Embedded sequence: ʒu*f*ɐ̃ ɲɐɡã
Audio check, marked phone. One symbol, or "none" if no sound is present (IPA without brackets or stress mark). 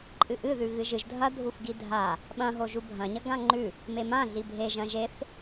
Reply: bʱ